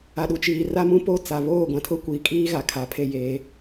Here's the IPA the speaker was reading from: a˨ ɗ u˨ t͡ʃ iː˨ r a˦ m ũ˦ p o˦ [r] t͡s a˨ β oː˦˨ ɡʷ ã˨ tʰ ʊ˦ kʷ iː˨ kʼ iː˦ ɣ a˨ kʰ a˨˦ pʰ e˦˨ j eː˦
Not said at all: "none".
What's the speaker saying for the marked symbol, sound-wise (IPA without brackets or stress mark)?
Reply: none